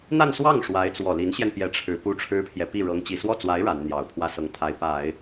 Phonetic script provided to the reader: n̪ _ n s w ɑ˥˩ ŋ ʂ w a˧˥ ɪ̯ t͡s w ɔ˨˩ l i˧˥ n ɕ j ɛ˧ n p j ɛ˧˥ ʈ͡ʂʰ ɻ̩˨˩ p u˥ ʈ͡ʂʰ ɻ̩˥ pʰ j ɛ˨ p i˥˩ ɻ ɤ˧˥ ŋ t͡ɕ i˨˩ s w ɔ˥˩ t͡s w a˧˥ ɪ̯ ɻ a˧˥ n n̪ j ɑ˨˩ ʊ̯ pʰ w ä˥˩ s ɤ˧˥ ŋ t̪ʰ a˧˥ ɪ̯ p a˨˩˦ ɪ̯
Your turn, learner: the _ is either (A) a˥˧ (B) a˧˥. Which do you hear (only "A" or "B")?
A